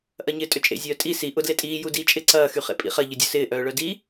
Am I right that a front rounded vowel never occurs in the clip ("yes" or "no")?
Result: no